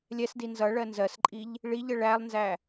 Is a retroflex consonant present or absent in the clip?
present